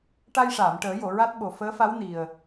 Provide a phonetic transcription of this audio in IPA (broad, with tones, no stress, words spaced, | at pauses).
ʈa˧jʂaː˨˩˨m ʈəː˨˩˦jo˨˩˨ ɹa˦˥t̚ɓo˨˩ fəː˧˥fa˧˥w ni˨˩ə̯